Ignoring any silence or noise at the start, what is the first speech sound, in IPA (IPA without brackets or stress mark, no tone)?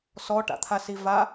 s